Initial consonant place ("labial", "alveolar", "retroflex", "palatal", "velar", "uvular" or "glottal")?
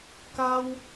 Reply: velar